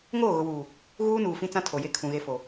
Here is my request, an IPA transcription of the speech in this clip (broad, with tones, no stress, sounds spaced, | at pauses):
ŋ oː˦˨ ɣ ʊ˨ w uː˨ | ɣ uː˦ n uː˨ f ĩ˦ t͡s ã˦ tʰ o˨ j e˦ kʰ ũ˨ ɣ e˦ f o˨